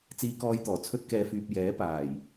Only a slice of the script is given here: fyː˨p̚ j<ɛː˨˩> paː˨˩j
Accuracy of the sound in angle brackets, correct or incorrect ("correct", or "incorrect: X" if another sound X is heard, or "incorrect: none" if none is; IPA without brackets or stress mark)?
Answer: incorrect: ɛː˨˥